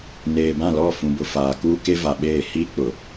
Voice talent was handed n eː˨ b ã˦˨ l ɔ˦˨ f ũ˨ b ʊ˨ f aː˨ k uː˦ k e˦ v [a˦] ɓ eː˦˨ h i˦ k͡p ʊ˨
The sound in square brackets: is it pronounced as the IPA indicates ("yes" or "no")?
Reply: no